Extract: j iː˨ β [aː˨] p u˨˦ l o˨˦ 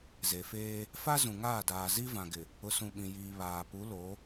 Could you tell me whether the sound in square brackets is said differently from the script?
no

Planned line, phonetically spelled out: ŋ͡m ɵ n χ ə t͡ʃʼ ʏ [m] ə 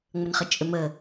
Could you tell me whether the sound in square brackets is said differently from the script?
no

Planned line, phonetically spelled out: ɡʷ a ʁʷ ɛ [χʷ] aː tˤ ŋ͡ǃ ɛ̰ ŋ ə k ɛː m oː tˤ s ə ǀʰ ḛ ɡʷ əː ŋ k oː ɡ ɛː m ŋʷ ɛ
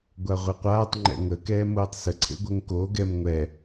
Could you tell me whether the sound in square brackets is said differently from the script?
yes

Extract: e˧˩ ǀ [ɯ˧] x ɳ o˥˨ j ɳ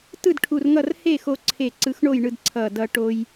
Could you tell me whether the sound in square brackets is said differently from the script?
no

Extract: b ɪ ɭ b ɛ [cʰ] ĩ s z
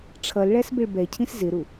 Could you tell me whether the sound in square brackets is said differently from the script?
no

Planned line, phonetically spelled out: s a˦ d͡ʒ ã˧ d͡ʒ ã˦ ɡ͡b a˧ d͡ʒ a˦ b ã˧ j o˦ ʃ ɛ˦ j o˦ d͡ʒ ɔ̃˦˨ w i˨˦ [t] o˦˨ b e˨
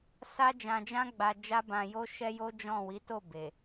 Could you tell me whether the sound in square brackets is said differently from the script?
no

